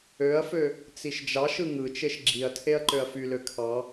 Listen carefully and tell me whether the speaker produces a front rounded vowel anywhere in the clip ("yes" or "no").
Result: yes